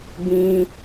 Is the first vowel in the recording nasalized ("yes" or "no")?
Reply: yes